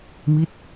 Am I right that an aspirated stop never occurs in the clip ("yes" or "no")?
yes